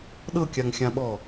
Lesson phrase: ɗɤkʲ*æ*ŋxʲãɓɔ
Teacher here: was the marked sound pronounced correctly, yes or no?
no